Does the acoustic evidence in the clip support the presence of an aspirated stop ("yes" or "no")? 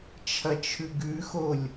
yes